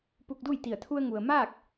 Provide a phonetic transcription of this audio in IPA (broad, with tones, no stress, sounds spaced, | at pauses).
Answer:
p u˧ k̚ d u˥˨ j t̪ i˧˩ ə̯ t̪ʰ u˧ ə̯ ŋ u˩ ə̯ m aː˥˨ k̚